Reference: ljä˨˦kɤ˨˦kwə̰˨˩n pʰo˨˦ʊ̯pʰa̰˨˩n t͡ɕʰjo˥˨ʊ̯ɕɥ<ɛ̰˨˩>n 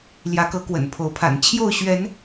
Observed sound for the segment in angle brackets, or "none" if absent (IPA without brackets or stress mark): ɛ˨˦